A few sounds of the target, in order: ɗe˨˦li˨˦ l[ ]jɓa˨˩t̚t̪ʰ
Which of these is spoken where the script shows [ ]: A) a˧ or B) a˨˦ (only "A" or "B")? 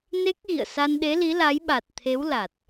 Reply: B